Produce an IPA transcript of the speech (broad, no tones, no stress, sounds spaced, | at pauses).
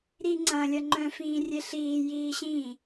ɾ i ŋ͡ǀ ɐ̃ lʲ ɐ ŋ͡ǃ œ̃ f ĩː rʲ e ɬ iː j iː ɕ ĩ